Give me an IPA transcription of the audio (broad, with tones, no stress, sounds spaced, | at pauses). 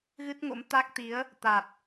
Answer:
ɣ ɨ˦˥ t̚ ŋ o̰˧˥ m t̪ a˦˥ k̚ t̪ i˨˦ ə̯ | t̪ a˨˩ t̚